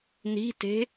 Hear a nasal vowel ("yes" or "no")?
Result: no